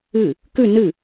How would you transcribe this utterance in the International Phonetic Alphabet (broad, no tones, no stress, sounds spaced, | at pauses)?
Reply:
ɨ | k ʉ n ɨ